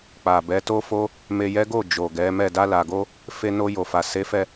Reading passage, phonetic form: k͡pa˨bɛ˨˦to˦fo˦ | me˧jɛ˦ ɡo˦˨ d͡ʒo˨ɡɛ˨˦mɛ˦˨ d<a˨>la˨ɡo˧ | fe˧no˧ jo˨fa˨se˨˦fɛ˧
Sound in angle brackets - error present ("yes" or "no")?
yes